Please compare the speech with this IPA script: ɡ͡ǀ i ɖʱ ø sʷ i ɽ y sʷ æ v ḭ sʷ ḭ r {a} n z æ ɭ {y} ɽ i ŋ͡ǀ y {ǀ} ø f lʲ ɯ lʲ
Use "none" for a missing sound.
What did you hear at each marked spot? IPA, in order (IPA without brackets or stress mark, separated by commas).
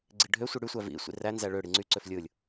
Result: æ, ø, ǀ